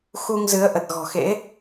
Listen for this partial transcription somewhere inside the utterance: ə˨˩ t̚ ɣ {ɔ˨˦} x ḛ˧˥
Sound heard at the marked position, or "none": ɔ̤˨˩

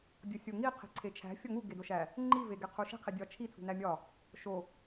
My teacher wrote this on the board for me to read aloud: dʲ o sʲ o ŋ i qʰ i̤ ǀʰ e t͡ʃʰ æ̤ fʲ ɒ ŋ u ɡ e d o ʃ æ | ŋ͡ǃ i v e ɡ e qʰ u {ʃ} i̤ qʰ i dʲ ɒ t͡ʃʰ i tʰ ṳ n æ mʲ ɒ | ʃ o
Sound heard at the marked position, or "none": ʃ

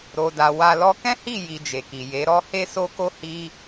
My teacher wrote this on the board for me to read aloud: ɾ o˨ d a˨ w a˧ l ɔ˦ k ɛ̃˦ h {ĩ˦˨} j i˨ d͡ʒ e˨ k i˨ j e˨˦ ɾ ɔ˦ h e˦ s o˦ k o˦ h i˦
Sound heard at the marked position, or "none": i˦˨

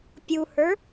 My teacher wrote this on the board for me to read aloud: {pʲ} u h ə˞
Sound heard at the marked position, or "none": pʲ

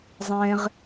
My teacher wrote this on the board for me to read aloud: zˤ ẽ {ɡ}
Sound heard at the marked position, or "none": ʁ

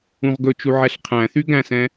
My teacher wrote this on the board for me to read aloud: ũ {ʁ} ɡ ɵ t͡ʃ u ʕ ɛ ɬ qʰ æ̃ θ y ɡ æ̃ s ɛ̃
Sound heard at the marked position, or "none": ʁ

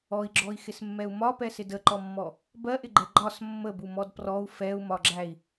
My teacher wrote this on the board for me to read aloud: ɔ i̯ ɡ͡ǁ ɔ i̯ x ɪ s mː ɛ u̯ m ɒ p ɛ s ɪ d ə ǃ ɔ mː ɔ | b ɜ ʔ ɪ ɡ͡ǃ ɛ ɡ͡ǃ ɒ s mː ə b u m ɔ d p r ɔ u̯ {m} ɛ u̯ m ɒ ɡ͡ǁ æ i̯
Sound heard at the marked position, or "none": f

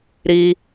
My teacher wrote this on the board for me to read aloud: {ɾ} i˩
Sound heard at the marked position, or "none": ɾ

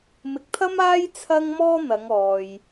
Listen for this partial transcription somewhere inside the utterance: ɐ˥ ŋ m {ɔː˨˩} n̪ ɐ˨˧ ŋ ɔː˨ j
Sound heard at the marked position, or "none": ɔː˥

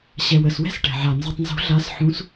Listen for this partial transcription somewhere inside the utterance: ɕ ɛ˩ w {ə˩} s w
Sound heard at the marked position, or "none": ə˩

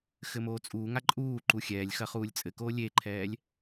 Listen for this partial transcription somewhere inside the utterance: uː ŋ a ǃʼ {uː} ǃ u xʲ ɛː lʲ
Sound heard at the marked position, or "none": uː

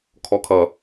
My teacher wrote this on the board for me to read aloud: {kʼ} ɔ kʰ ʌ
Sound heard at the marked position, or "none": kʰ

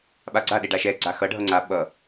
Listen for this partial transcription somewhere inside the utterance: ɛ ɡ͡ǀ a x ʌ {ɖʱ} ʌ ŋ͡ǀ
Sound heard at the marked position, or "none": ɖʱ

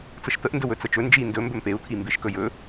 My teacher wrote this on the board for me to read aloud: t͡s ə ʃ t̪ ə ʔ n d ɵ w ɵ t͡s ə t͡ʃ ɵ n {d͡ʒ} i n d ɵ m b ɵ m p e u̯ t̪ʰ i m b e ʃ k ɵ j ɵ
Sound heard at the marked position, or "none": d͡ʒ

